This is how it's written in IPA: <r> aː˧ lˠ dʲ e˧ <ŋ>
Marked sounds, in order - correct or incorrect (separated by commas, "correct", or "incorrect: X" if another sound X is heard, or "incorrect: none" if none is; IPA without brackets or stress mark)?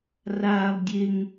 correct, correct